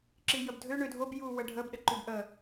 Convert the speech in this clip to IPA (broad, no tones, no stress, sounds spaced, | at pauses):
ǁ i j ə b dʱ ø ɳ ø dʱ o b j u w ə ɖʱ ə b ɗ ə ǃ ʉ b ʔ ə